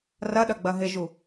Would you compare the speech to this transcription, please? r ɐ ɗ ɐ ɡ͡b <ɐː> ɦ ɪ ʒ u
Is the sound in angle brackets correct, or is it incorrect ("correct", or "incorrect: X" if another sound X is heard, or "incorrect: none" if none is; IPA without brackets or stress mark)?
incorrect: ɐ